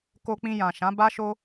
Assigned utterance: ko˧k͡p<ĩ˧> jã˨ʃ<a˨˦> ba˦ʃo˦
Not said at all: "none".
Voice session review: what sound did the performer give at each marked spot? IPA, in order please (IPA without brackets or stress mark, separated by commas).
ĩ˧, ã˨˦